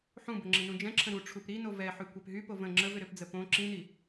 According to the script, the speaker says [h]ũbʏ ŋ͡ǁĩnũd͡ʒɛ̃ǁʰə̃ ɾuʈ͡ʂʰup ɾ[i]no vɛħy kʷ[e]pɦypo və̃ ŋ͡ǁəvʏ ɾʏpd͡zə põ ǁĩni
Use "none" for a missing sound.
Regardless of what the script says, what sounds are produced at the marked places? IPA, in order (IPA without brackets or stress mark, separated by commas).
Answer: ħ, i, ɛ